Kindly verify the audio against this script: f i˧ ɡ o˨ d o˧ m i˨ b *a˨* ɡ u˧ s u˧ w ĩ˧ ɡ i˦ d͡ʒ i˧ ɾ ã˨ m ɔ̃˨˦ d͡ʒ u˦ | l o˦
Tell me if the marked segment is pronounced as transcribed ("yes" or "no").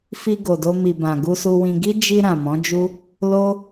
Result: no